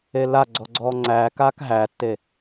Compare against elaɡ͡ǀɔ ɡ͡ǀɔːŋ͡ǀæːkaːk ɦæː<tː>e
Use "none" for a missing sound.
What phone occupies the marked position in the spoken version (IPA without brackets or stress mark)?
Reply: tː